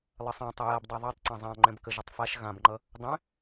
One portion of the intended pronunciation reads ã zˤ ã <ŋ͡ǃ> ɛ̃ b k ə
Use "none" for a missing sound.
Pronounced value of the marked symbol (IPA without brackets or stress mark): ŋ͡ǃ